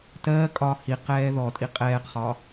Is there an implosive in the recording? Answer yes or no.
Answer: no